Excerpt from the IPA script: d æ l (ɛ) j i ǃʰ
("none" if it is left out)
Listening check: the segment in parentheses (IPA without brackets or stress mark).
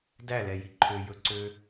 ɛ